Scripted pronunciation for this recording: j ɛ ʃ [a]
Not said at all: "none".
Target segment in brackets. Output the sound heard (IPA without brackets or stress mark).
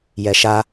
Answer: a